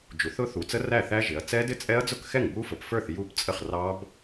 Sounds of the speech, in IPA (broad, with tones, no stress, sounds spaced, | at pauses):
d͡ʒ u˩˧ θ ʊ˦˥ θ u˩˧ t͡s ə˦˥ r æ˥˩ θ æ˦˥ ʒ ɪ˩˧ ɐ̯ t͡s ɛ˦˥ d ɪ˥˩ t͡sʼ ɛ˦˥ ɐ̯ d͡z ʊ˥˩ k x ɛ˥˩ ŋ b u˦˥ f ə˩˧ p f ə˞˥˩ θ j u˦˥ p t͡sʼ ə˥˩ χ r ɑ˦˥ b